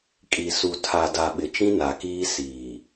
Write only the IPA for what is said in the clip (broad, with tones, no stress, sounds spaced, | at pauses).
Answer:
kʼ i˨ s u˨ tʰ a˨ d a˨ ɓ ɪ˨ t͡ʃ ĩ˦ n a˨ k iː˦ s iː˨